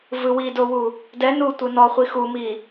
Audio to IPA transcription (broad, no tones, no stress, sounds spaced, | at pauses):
v ɯ w i d o w u | d ɛ n u tʷ ɯ n ɔ χʷ i x u m i